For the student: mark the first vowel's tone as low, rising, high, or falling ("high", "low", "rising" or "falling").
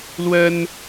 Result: high